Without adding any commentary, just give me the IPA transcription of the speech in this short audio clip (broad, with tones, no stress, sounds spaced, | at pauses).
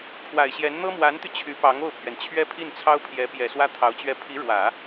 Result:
pʰ w a˨˩ ɪ̯ ɕ j ɛ˧˥ n n̪ ɤ˥ m w a˧˥ n t̪ y˧ t͡ɕʰ y˧˥ p ɑ˧˥ ŋ o˥˩ ʊ̯ pʰ ɥ ɛ˩ n t͡ɕʰ ɥ ɛ˥ pʰ i˥˩ n t͡sʰ ɑ˥ ʊ̯ pʰ j ɛ˧˥ p j ɛ˨˩ s w ä˥ t̪ʰ ɑ˧˥ ʊ̯ t͡ɕ ɥ ɛ˥˩ pʰ i˧˥ ɻ w ä˨˩˦